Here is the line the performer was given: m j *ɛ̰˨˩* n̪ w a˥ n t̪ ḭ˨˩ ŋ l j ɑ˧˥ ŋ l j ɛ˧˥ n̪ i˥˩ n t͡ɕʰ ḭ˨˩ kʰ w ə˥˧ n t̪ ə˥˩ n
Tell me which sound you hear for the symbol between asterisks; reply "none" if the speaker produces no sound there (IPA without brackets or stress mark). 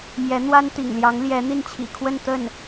ɛ˧˥